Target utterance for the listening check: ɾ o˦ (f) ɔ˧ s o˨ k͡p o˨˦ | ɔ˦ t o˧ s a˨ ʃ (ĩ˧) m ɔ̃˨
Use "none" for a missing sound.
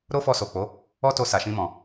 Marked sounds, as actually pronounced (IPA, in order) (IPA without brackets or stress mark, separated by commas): f, ĩ˧